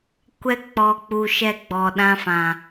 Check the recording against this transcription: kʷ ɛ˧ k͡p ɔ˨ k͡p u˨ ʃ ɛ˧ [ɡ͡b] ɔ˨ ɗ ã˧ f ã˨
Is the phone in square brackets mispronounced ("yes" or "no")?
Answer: no